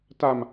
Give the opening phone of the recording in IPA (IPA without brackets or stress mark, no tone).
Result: t